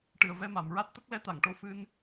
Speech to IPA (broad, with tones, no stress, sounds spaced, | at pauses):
ʈ ɨ˨˩ ə̯ v ɛ˧ m a˨˩˨ m ɹ a˦˥ t̚ t̪ ə˦˥ k̚ l ɛ˧˥ t̪ a˨˩˨ ŋ ʈ o˧˥ f ɨ˧ n